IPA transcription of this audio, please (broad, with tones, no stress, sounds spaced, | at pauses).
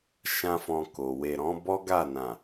ʃ ã˦ f ɔ̃˧ k o˨ w e˨ ɾ ɔ̃˨˦ b ɔ˦ ɡ a˦˨ n ã˨